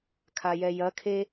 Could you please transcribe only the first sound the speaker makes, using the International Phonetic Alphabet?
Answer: kʰ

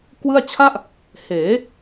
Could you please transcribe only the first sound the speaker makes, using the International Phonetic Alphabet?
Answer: k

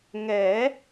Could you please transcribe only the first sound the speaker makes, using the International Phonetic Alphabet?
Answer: ŋ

